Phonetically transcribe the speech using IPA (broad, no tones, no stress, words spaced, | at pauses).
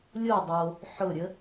lʲodˤo | ħʊɾʲə